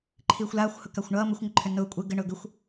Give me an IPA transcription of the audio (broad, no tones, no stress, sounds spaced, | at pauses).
ǃʰ iː xʷ l aː xʷ h ʊ k a xʷ ɳ ʌː m ɘ xʷ ŋ ɘ ǃʰ ʏ n ʊː kʷʼ ɘ ɡ ɘ ɳ ʊː ɡ ʏ xʷ